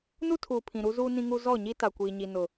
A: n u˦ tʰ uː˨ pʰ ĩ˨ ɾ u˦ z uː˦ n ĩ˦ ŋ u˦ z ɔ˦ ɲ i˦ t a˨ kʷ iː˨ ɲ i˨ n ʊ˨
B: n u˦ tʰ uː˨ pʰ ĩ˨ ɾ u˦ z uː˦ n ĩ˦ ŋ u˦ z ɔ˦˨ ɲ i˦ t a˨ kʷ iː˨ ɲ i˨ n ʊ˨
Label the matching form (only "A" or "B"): B